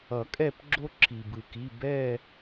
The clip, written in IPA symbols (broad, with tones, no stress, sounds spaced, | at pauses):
ʌ˨˩˦ kʼ ɛ˦˨ p ɡ͡ǁ o˦ ǁʰ i˩ b ɯ˩ k i˩˧˩ b ɛ˦˨